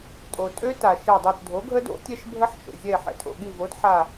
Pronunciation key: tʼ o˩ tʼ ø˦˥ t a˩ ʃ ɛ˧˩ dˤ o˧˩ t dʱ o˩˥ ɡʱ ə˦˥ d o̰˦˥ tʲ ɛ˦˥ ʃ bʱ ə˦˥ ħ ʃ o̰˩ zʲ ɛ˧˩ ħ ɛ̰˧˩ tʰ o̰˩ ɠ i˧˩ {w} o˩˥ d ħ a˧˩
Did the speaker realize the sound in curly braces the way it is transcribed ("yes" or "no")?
no